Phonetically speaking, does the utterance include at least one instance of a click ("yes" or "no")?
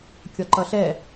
yes